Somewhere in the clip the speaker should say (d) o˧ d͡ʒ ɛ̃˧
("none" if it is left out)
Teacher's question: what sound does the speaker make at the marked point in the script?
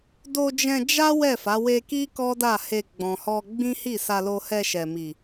d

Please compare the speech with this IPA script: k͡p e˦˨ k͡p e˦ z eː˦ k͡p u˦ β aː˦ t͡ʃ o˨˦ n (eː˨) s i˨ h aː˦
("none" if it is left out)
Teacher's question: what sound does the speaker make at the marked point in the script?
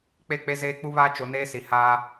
eː˦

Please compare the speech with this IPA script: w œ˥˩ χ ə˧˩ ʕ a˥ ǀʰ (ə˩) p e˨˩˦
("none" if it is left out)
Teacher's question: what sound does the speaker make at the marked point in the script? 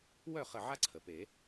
ə˩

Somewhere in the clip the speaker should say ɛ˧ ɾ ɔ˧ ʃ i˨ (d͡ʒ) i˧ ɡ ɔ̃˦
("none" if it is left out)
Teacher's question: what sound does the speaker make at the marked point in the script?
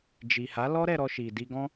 d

